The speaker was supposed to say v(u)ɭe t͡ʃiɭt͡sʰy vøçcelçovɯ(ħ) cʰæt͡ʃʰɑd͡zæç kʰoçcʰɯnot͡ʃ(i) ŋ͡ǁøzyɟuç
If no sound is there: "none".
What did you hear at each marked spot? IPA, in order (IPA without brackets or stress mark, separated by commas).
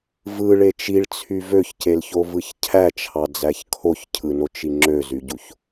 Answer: ɯ, ç, i